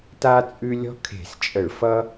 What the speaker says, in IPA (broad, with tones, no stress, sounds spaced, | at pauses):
t a˥ t͡sʼ ʉ˥ lʲ ɔ̤˥ kʰ e̤˧˩˧ s t͡ʃʼ ə˧˩˧ ɭ f ʌ˥